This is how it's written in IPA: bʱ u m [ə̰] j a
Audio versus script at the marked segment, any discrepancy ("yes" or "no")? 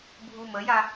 yes